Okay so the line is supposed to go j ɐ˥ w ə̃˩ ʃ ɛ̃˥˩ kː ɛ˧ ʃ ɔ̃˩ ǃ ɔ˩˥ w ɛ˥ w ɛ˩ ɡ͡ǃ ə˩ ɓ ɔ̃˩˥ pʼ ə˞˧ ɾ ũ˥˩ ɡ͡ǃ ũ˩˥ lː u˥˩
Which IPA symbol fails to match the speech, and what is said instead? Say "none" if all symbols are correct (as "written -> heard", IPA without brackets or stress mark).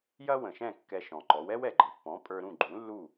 ɓ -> pː